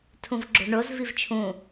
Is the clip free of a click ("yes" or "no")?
no